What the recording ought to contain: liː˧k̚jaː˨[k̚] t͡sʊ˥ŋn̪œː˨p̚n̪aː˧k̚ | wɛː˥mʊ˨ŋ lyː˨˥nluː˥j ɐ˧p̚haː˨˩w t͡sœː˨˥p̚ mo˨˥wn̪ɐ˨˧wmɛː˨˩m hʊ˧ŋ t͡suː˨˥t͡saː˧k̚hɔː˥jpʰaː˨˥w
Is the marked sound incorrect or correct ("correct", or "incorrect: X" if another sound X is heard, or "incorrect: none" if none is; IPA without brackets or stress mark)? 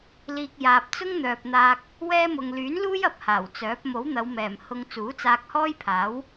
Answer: incorrect: p̚